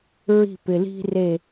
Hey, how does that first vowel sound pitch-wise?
falling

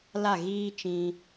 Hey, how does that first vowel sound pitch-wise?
falling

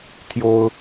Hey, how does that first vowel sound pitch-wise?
high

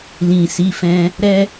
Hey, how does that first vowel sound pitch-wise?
low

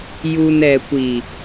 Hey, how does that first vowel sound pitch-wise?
low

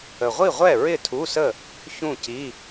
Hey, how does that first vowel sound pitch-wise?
low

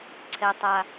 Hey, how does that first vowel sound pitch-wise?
low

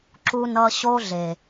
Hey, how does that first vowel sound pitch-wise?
high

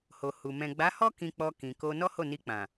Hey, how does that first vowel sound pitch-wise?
low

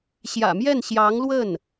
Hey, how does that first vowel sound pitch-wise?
low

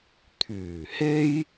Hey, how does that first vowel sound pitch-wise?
low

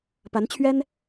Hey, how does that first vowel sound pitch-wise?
rising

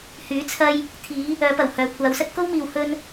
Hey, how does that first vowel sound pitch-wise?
rising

